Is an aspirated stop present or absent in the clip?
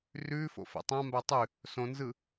absent